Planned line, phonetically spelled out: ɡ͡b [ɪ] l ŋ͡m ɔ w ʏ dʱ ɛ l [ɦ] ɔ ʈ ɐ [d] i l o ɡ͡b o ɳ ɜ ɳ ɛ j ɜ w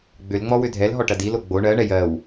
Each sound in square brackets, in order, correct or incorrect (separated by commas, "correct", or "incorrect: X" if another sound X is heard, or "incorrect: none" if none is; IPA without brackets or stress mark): incorrect: ʏ, correct, correct